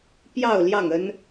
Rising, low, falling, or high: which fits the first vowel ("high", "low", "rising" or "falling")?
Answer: falling